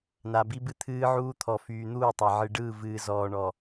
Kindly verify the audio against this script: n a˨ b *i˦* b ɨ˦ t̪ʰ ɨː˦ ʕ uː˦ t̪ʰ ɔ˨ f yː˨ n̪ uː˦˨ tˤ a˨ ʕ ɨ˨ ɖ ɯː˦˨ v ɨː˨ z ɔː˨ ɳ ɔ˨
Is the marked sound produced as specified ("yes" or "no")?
yes